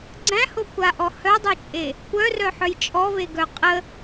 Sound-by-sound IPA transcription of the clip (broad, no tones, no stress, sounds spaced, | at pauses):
ɡ͡ǀ æ̃ h o kʷ a ʔ ɔ h œ dˤ œ t͡ʃʼ e | kʷ œ r œ ħ œ j t͡ʃʼ ɔ v e ɡ œ qʼ ə